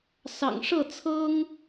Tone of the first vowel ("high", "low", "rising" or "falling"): low